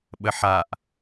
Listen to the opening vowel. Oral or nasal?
oral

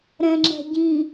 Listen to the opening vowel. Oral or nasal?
nasal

